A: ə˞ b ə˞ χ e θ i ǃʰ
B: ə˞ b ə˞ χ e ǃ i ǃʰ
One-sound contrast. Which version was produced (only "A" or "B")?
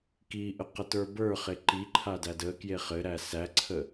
B